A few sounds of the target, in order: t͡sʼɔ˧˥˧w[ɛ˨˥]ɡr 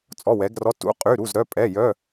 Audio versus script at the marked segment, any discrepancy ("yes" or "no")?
no